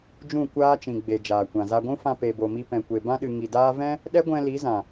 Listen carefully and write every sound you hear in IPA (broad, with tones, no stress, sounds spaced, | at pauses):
d͡ʒ ũ˦˨ kʷ aː˦ t͡ʃ ĩ˨ ɡ͡b e˨ d͡ʒ aː˨ kʷ ã˨ z a˧ ɡʷ ũ˦ f ã˧ p e˨ b o˨ m i˧ p ɛ̃˨ kʷ e˨ b ã˦ ɗ ɨ˨ ŋ i˨ d aː˦ v ɛ̃˦ | ɗ ɛ˦ ɡʷ ɛ̃˧ l i˨˦ z ã˨